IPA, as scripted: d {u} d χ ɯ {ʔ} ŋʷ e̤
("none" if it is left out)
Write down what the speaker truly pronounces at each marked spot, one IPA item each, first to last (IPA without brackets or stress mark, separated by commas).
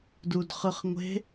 u, χ